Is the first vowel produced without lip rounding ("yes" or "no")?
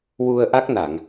no